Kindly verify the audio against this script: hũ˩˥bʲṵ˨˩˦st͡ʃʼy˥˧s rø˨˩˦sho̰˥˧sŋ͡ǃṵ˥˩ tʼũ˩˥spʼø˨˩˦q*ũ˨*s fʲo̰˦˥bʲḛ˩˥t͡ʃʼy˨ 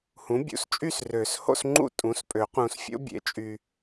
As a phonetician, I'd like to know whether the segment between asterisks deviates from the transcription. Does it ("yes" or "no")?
no